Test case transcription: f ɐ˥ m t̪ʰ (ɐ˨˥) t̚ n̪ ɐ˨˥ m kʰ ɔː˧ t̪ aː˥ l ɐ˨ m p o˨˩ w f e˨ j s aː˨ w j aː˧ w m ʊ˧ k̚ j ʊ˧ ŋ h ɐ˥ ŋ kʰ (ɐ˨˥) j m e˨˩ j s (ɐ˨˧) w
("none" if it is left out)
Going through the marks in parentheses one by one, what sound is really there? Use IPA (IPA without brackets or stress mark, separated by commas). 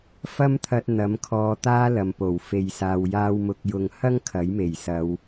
ɐ˧, ɐ˨˥, ɐ˨˧